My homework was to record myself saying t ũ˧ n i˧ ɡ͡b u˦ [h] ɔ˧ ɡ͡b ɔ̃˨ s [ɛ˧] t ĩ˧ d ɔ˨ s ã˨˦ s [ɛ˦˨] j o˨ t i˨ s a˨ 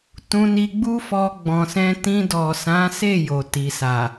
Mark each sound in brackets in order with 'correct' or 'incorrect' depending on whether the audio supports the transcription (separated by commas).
incorrect, incorrect, incorrect